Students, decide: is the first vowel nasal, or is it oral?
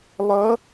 oral